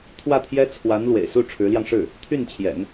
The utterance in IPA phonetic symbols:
t̪ʰ w ä˥˩ t̪ʰ j ɛ˥ t͡sʰ w a˧˥ n l w ḛ˨˩ ɪ̯ s u˥˩ ʈ͡ʂʰ ɻ̩˧˥ l j ɑ˧ ŋ ʂ ɻ̩˥˩ | t̪ʰ y˥˩ n t͡ɕʰ j ɛ̰˨˩˦ n

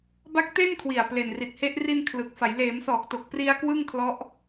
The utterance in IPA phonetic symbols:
b a˦˥ k̚ t e˥˩ n kʰ w i˨˩ a̯ p l e˨˩ n r i˨˩ t̚ h e˦˥ ʔ r i˧ n kʰ l ɯ˨˩ k̚ f a˩˦ j l eː˩˦ m s ɔː˨˩ k̚ t o˨˩ k̚ p r i˧ a̯ k w ɯ˥˩ ŋ kʰ l ɔ˦˥ ʔ

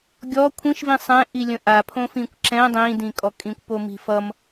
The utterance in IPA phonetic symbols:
ɡʲ ɔ kʷʰ ĩ ʃ v ĩ sˤ ɛ̃ ʔ i lʲ ə̃ ʔ a pʰ õ f ĩ kʷ ǁ ɛ̃ dˤ ĩ d ĩ kʼ ɔ kʼ ĩ kʷ p o m i̤ f ʌ m

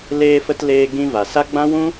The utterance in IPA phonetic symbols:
l eː˧ f ə˧ t l eː˧ ɡ ĩ˧ v a˨ s a˦ ɡ͡b ã˦ w ũ˦

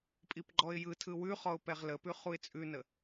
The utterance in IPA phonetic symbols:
pʼ i p ɡ͡ǃ ɔ ɪ̯ j ɯ tʰ ɯ w ʉ χ ɔ ʊ̯ p ɛ ʁ l ə p ʉ χ u ɪ̯ t͡sʼ ʉ n ə

